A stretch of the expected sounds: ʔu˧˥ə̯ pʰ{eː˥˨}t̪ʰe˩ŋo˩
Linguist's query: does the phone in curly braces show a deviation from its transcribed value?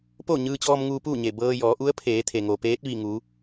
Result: yes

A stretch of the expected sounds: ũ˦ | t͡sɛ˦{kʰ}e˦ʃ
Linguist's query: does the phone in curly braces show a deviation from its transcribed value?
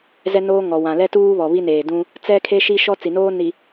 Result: no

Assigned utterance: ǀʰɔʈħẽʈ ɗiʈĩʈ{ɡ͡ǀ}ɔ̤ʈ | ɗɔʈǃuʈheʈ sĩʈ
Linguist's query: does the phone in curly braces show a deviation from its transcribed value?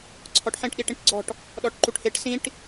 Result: no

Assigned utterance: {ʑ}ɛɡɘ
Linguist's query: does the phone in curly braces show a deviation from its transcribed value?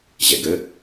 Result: no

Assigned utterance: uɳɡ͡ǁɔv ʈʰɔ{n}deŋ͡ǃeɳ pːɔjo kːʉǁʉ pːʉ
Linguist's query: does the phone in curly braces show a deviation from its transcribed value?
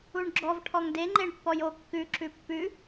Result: yes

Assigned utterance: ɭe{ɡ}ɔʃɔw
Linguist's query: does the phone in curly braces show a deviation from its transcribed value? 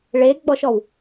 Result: yes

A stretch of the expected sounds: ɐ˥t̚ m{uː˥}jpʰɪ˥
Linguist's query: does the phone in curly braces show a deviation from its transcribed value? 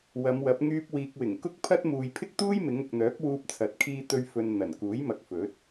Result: yes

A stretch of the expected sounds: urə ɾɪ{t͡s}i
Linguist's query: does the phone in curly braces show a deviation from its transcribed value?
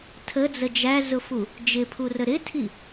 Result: yes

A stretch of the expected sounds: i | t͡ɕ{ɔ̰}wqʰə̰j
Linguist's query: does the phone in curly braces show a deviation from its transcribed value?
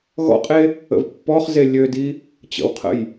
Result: yes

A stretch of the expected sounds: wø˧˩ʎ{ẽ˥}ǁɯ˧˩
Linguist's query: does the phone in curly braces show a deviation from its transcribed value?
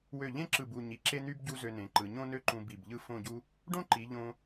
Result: no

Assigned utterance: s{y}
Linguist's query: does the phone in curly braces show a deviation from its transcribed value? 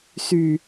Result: no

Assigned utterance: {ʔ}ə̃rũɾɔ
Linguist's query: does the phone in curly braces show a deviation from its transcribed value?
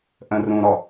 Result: no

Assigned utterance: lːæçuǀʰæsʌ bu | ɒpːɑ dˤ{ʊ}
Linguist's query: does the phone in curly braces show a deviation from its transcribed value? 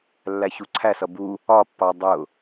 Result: no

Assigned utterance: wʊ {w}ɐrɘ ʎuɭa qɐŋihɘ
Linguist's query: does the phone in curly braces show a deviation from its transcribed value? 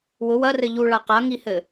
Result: no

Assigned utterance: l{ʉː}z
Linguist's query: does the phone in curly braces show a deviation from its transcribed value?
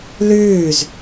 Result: no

